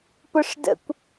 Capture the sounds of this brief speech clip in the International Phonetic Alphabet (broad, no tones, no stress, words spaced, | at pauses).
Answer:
pʊʂ də̰kʷ